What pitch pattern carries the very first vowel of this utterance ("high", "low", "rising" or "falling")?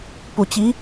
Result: low